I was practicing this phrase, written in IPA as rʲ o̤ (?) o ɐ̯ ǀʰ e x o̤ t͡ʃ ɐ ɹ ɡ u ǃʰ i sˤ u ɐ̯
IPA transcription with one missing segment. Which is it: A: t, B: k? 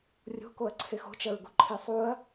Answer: B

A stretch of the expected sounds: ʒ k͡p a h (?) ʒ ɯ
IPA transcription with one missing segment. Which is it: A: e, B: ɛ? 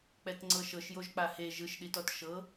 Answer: A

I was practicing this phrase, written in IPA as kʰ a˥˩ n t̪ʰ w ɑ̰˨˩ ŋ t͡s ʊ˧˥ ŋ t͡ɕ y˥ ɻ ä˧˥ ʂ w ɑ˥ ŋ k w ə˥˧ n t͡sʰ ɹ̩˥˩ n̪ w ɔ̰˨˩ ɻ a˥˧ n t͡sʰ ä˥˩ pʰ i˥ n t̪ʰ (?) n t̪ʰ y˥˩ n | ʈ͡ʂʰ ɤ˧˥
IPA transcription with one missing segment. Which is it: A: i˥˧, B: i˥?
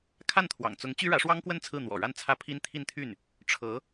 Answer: A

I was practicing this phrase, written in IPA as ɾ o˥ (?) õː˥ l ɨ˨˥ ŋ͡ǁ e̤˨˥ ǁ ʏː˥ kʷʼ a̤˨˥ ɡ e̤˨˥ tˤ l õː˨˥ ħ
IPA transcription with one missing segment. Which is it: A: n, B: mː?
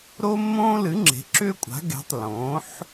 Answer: B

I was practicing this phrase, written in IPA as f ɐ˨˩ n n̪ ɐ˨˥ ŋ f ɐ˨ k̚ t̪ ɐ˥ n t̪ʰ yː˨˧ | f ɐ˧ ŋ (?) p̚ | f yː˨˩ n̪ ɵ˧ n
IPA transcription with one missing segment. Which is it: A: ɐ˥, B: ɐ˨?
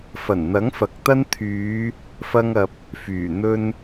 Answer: B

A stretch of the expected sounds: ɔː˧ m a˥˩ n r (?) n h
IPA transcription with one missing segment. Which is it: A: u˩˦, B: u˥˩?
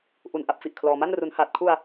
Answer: A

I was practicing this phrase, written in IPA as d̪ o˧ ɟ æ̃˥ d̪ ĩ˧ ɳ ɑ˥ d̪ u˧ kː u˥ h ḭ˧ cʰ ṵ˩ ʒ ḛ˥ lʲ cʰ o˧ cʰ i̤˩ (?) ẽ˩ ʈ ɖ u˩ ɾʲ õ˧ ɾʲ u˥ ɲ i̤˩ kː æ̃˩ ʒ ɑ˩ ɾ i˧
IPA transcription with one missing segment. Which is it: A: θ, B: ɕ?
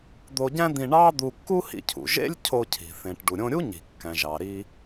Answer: A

